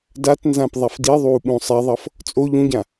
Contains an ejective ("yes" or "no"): yes